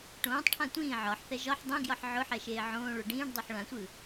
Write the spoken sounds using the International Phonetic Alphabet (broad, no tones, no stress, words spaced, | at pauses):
ʈõːtˤʈʰã tʷĩː ʕɒħθɛ ʒɒħ dˤẽɡjɒħ ʕʊħɛʃeː ʕõːɭo ɖĩːɖdˤoħ ɭãsʷɯ